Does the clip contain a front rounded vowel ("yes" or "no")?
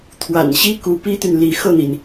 yes